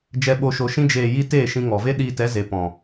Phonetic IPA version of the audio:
d͡ʒ ɛ˧ ɓ o˧ ʃ o˧ ʃ ĩ˦ d͡ʒ eː˨ j i˧ t eː˦˨ ʃ ĩ˧ ŋ ɔ˨ v e˦ ɗ iː˧ t ɛ˨˦ z e˨ p ɔ̃˨

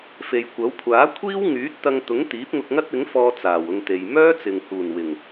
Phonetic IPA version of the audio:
f e˨ j kʷ ɐ˨˥ w kʷʰ aː˨˥ kʷʰ iː˥ w ŋ yː˨˥ t̚ t̪ ɐ˧ ŋ t̪ ʊ˨˥ ŋ t̪ iː˨˥ p̚ ŋ ʊ˧ k̚ ŋ ɐ˥ t̚ ɪ˨˥ ŋ f ɔː˧ t͡s aː˨˩ w ʊ˧ ŋ t̪ e˨ j m œː˥ t͡s ɪ˨ ŋ h uː˨˩ n w ɪ˨˩ ŋ

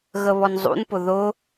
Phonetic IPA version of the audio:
ɣ ə β ɔ n zˤ ṵ n p ʊ ð ʊ

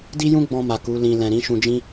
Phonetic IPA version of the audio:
d i˦ j ũ˦ ɡ͡b ɔ̃˧ m a˨ k u˨˦ l ĩ˧ l ɛ̃˨ ɾ ĩ˨˦ ʃ ũ˧ d͡ʒ ĩ˦

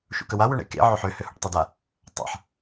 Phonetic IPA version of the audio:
ʃ ṵ k ə w a w ø ɳ ḛ k ḛ ʕ ø ħ ø h ø h ṵ ʈ tˤ e d a | tˤ a̰ ħ

